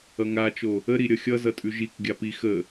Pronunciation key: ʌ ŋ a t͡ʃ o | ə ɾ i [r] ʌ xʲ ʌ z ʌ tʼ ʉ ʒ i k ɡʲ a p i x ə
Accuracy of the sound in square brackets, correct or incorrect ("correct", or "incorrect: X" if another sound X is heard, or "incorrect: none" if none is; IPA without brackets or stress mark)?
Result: incorrect: ɾʲ